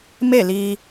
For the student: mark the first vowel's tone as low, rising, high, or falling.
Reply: falling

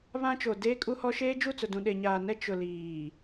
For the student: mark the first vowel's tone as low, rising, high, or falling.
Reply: high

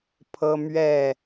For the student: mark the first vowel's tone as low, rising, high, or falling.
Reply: high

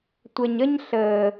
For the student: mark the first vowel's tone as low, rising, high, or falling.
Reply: low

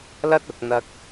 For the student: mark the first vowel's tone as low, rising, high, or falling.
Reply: high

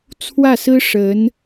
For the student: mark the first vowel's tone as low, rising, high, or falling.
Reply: falling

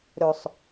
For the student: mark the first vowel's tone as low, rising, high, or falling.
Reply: low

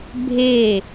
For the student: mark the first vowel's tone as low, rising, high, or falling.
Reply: falling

